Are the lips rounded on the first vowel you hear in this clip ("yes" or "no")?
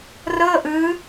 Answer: no